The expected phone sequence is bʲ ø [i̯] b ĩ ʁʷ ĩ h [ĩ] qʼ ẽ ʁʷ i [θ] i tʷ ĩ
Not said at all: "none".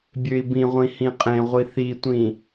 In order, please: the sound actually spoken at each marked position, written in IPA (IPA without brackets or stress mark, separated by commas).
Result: i̯, ĩ, θ